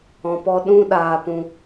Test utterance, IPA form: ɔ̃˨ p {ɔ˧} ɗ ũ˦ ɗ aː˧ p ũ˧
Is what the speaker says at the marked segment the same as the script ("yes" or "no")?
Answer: yes